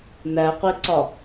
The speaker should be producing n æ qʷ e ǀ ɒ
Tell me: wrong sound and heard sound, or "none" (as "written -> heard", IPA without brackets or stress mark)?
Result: none